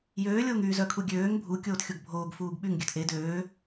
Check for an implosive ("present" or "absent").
present